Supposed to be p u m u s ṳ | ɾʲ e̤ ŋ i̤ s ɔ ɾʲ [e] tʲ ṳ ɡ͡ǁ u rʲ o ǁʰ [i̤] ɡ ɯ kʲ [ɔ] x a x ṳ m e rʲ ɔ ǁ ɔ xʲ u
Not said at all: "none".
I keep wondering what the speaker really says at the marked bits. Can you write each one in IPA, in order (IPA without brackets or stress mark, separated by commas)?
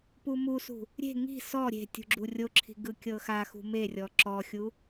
e̤, i̤, ɤ